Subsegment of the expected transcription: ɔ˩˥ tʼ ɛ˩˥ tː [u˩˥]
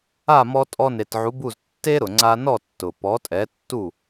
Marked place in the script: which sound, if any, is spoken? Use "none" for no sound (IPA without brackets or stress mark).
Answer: u˥˩